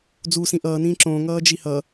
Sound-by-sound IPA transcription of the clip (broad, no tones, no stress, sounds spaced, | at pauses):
d͡z u s ĩ ʔ ʌː n ĩː ǁ õ ŋ ʌː d͡ʒ i h ʌ